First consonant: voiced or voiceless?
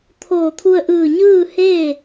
voiceless